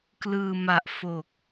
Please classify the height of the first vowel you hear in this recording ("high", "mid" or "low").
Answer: high